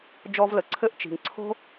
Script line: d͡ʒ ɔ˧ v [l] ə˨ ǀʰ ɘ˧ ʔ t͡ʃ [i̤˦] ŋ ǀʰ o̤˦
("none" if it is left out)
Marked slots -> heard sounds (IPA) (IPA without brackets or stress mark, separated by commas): l, i̤˨